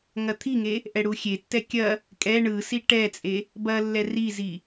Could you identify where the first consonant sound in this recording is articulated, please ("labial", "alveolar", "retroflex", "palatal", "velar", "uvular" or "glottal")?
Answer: velar